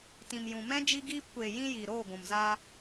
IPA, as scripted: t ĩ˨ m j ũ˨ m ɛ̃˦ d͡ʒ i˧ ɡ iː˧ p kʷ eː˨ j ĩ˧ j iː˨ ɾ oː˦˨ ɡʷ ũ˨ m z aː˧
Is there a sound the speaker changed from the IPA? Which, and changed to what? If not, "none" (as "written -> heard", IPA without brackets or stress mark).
none